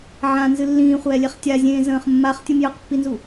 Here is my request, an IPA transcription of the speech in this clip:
ʕ ã n z ɨ lː ĩː χʷ ɛː lʲ e χ tʲ a zʲ ẽː z ə̃ː χ mː a χ tʲ ɯ m j ə q pː i n z u

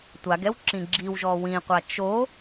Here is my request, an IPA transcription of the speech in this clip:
tʷ a ɡ ɛ w ǁ ĩ ɡ͡ǁ i w ʒ ɔ w ĩ qʷ a t͡ʃ o

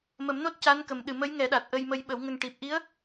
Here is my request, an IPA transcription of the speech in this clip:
m ə˨˩˦ m n o˦˥ t̚ c a˧˥ n k ə˨˩ m ɗ ɨ˨˩ m ə˧˥ j ŋ ɛ˨˩˦ ɗ a˨˩ t̚ ʔ ə˧ j m ə˧ j ɓ ə˨˩˦ w ŋ ə˧ ŋ ʈ i˨˩ p̚ ʔ i˧˥ ə̯

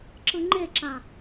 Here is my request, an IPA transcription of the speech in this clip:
ǁ ɯ ŋ͡ǃ e ǁ ã

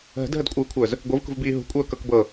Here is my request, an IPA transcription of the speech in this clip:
ɦ ə̤ d ɦ ə d kʷʼ ɯː kʷʰ œː z | ɡʷ ɯ v k ṳ v b iː ɦ ṳ kʷʼ œː k ɤ k b ɤ

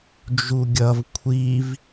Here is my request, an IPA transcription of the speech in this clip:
d͡ʒ u ɡʲ ʌ v kʷʰ i v

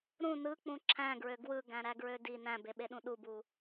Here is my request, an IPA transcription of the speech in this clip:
ɾ ũ n ɯ k͡p ũ ǁʰ æ̃ ɡ ɹ ø ɡ w ɯ ɡ æ̃ ɾ æ ɡ ɹ ø d i n æ̃ b e ɓ e ɗ ũ ɗ u b u

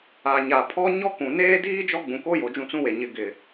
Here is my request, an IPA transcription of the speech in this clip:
a˨ ɲ a˨ pʰ ɔ˦ ɲ ɔ˦ k ũ˨ n eː˦ d iː˦ d͡ʒ ɔ˦ ɡ͡b ũ˨ k o˦ j o˨ d͡ʒ ũ˦˨ t͡s ũ˦ w e˨ ɲ ɪ˨ ɡ ɪ˨

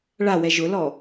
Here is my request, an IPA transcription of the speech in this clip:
ɭ a w ɛ ʒ ʊ l ɔ

